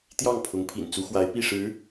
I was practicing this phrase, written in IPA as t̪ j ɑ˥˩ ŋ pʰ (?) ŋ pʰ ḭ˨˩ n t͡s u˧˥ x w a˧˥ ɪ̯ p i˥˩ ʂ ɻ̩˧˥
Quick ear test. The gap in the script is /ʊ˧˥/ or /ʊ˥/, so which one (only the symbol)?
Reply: ʊ˧˥